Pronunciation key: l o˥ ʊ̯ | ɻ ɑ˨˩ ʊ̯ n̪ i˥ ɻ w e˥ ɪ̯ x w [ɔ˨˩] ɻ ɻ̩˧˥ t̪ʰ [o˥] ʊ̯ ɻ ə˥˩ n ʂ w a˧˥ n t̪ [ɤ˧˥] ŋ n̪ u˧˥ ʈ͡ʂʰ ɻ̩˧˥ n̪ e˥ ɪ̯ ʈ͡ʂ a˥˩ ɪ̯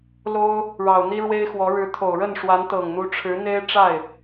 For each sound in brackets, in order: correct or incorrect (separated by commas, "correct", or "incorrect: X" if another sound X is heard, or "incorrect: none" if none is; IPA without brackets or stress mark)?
incorrect: ɔ˧˥, incorrect: o˨˩, incorrect: ɤ˨˩